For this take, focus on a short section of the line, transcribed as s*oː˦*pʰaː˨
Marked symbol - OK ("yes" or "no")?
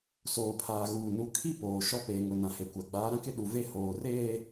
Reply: no